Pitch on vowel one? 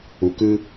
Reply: low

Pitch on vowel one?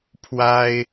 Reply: high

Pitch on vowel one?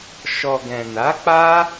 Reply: low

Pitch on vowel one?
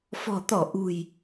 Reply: low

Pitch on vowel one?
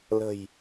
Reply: low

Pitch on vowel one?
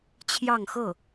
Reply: falling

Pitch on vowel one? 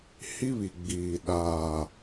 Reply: high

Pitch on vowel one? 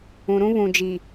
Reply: low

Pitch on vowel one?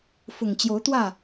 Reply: low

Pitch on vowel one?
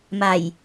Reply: low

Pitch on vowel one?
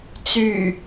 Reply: low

